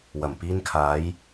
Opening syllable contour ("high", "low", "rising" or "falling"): low